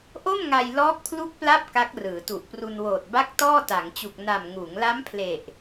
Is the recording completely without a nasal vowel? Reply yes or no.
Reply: yes